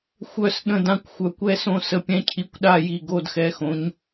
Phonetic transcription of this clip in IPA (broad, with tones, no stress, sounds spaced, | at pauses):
xʷ œ˦˨ s ɗ ə̃˦˨ d ã˦˨ kʷ xʷ œ˨˦ kʷ ɛ˦˨ s õ˦˨ s ə˨˦ pʲ ɛ̃˨˦ cʰ i˨˦ kʷ ɗ a˦˨ j i˦˨ ɡ o˦˨ d x ɛ˨˦ x õ˨˦ ɲ